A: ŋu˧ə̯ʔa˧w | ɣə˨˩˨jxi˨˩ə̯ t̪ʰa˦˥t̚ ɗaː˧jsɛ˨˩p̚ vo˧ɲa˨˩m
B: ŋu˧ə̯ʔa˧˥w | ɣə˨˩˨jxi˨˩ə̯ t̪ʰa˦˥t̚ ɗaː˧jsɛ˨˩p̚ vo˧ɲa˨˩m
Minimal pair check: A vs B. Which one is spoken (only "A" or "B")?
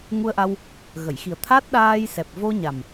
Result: A